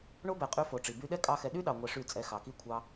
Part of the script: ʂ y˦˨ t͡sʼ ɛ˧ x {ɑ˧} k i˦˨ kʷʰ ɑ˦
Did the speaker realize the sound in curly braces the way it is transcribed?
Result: no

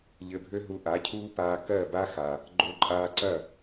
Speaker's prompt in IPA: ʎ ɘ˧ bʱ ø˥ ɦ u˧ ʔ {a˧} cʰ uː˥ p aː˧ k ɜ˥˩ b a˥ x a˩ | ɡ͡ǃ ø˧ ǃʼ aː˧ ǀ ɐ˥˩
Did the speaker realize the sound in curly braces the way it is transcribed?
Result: no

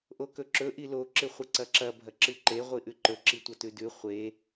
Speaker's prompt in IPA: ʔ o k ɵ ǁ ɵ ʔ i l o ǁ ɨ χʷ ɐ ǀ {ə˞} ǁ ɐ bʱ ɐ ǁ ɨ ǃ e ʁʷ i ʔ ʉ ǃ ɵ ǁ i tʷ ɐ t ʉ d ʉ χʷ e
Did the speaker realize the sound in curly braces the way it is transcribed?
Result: no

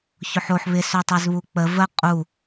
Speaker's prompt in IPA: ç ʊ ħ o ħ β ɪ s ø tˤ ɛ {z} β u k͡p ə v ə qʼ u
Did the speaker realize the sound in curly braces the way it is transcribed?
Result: yes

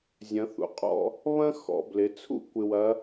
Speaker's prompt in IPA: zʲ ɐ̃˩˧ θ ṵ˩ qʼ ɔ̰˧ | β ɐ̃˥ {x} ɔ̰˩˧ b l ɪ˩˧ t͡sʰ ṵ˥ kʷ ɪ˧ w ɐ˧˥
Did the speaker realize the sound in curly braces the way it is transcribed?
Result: yes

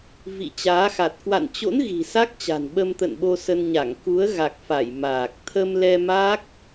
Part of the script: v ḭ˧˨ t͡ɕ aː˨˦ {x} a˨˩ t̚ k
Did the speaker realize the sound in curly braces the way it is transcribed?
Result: yes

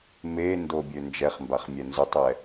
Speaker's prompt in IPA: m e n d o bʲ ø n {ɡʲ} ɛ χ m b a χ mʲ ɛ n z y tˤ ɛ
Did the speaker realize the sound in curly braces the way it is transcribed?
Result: no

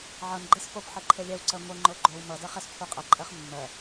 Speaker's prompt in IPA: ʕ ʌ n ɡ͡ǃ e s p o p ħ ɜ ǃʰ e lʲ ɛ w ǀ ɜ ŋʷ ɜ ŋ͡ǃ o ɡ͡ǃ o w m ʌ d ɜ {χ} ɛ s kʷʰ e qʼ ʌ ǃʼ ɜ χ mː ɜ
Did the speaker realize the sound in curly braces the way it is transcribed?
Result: yes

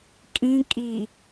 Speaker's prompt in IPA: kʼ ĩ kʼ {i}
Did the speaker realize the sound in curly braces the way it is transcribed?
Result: yes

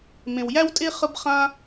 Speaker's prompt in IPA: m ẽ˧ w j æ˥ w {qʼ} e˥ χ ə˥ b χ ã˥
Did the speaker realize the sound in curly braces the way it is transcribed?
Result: no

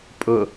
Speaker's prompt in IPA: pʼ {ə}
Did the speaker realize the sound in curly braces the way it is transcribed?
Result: no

